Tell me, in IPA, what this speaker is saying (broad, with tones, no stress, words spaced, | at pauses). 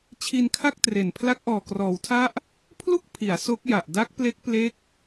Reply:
t͡ɕʰi˧nkʰa˥˩k̚tre˨˩n pʰla˦˥k̚ʔɔː˨˩krɔː˩˦wtʰa˥˩ʔ | pʰlu˥˩k̚pʰi˩˦a̯ so˦˥k̚ja˨˩ʔ da˦˥k̚ple˦˥k̚ple˦˥k̚